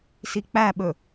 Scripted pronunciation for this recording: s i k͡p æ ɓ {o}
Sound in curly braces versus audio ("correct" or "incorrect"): incorrect